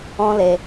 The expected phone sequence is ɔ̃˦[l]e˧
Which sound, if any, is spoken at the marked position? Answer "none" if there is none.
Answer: l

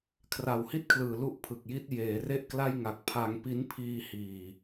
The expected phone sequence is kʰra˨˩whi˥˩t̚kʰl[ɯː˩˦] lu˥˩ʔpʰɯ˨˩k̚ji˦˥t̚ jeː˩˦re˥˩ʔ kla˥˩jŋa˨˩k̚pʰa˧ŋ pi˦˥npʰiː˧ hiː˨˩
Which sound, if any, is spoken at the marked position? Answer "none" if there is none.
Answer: ɯː˨˩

